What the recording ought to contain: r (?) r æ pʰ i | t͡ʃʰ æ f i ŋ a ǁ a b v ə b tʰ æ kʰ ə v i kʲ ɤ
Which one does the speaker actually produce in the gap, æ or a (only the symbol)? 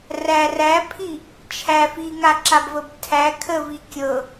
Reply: æ